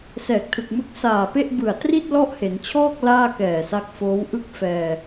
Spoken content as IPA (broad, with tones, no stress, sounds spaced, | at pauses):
s ɛː˨˩ k̚ tʰ ɯ˨˩ k̚ m ɯ˦˥ k̚ s aː˨˩ p e˥˩ ʔ b ɯ˨˩ a̯ t r i˥˩ t̚ l ɔ˥˩ ʔ h e˩˦ n t͡ɕʰ ɔː˥˩ k̚ l aː˥˩ k ɛː˨˩ s a˦˥ k̚ f oː˦˥ w ʔ ɯ˥˩ k̚ f ɛː˧